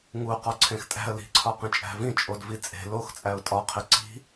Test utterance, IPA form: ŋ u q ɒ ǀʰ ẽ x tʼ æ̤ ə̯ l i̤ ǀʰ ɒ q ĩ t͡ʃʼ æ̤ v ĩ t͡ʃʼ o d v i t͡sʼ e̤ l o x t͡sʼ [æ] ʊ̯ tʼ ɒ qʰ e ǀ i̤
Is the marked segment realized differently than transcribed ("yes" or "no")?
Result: no